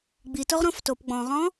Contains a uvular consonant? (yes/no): yes